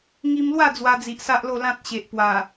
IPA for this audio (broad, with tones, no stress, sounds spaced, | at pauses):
ŋ i˧ m l w a˥˧ d͡z w a˧ d͡z i˨ ʔ s a˦ ʔ l o˥˧ l ã˦ t̚ ɕ e˨ ʔ p w a˨˩